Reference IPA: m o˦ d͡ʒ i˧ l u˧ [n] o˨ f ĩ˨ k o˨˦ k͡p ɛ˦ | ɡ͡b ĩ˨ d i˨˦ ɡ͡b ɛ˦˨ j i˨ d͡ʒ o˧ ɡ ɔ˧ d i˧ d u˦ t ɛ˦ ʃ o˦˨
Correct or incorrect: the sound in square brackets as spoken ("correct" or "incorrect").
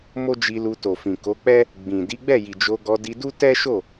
incorrect